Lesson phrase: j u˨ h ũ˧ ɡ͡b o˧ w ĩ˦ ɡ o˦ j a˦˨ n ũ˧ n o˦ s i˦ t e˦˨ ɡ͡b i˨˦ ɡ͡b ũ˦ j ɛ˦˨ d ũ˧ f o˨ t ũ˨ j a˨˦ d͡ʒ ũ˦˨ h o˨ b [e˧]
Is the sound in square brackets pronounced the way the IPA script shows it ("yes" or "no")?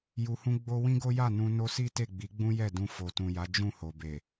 no